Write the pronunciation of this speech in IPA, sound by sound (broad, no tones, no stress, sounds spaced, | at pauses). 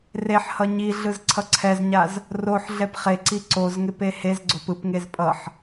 r e ħ h ʌ ɲ i ɮ ɯ z ǀʰ ʌ ǀʰ ɛ z ɲ a z | r o ħ ɮ ɛ p χ e ǀ i ǀ o z ŋ e p e h e z ɡ͡ǀ o p ɯ p ŋ e z pʼ ʌ ħ